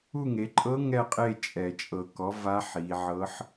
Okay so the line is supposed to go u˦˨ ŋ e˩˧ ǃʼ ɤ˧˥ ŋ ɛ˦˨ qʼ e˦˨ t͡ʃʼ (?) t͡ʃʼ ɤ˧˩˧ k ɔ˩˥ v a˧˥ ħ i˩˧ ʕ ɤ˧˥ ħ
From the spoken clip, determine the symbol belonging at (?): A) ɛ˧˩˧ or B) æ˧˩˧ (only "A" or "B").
A